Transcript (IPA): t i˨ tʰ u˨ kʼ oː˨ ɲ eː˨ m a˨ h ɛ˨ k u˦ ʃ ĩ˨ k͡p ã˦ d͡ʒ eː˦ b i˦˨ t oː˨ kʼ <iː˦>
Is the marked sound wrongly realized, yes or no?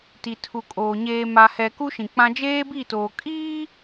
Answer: no